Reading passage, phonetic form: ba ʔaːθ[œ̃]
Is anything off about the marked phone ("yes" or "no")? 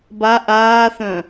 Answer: no